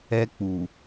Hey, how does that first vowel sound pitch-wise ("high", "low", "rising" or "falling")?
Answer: high